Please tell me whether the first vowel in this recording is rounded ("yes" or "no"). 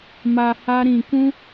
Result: no